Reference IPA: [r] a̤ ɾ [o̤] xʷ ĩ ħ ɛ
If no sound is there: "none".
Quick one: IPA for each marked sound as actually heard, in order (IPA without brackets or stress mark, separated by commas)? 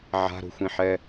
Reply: ʕ, o̤